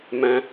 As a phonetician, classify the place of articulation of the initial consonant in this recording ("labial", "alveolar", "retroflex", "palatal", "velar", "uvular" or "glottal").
labial